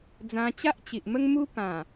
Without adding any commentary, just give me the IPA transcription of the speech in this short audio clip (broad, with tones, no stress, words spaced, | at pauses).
d͡zã˧t͡ɕa˦ʔt͡ɕi˨ʔmə˦ŋ mu˦ pã˨˩